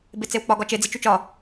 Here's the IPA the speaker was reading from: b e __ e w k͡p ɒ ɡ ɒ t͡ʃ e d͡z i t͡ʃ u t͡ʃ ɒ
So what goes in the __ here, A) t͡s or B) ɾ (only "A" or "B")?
A